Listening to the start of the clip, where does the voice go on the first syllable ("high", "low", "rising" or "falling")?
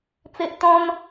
low